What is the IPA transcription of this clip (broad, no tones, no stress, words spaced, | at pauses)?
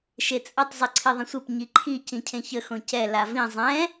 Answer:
ʃet͡sʼətˤ zˤiǀʰeðˤə̃sʷep ɲiǃʰi cĩcʰẽçə xõcɛ lavĩ zˤɛ̃